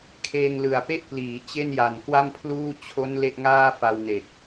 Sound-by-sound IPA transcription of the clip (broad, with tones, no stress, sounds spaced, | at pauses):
kʰ eː˧ ŋ l ɯ˨˩ a̯ p e˥˩ ʔ p l iː˩˦ t͡ɕ e˥˩ n j a˨˩ n k w a˥˩ m pʰ l uː˥˩ t͡ɕʰ o˦˥ n l e˥˩ ʔ ŋ aː˥˩ f a˧ w n e˨˩ k̚